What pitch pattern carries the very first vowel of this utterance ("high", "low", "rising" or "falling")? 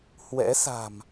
rising